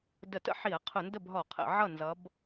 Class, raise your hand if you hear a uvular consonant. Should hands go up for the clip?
yes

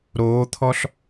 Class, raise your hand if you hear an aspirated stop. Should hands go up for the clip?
yes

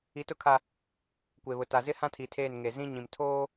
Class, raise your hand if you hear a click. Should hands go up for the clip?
no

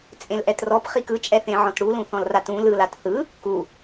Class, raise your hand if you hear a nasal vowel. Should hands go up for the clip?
yes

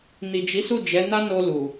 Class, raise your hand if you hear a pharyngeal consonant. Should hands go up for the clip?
no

